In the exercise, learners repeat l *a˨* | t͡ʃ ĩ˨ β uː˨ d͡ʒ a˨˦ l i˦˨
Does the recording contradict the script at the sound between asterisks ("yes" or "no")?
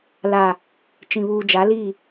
no